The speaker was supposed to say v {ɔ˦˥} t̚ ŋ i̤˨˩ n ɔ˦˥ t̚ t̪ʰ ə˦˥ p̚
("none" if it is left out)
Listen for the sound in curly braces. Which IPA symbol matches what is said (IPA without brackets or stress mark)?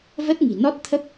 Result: ə˦˥